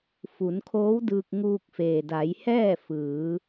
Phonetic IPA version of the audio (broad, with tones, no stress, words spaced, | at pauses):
fu˩˧nkʰoː˧˥wdɯː˧k̚ ŋuː˧k̚feː˩da˩˧jhɛː˥˨ fɯː˩˧